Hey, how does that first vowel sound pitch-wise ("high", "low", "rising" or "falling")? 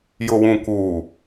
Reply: low